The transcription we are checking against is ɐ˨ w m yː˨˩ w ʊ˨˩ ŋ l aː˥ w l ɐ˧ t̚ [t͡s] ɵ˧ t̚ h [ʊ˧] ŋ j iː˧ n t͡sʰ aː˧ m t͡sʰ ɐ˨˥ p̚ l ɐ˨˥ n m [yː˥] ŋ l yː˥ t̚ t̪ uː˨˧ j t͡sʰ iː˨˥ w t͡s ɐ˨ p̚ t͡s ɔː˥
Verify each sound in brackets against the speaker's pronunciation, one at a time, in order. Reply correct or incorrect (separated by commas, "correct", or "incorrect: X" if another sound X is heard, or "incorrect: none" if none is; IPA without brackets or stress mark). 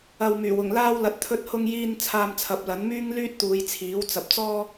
incorrect: t̪ʰ, correct, correct